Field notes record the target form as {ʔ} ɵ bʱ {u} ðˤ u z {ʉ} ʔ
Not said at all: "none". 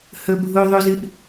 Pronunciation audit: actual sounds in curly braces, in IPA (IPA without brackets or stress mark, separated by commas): h, u, ɨ